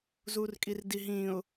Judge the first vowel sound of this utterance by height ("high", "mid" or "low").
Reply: high